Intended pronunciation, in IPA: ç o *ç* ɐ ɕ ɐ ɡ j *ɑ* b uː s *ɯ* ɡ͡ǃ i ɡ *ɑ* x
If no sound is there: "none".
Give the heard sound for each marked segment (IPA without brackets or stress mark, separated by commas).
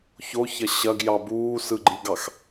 ç, ɑ, ɯ, ɑ